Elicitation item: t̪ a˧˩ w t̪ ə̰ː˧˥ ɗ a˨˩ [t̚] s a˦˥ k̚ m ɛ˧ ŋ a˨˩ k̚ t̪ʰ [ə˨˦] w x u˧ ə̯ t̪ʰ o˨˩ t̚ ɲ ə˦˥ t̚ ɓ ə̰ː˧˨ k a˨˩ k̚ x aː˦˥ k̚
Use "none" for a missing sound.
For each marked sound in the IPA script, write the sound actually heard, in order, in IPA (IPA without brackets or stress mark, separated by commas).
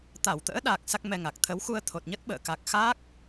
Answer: k̚, ə˨˦